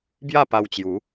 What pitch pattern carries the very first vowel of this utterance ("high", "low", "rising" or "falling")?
falling